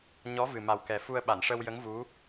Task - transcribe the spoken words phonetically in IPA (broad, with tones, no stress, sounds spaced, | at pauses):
ɲ ɔ˧˥ v ɨ˨˩ m a˨˩ w k ɛ˨˩ f u˧ ə̯ ɓ a˨˩˨ n ʂ ə˧ w j ə˧˥ ŋ v u˧˥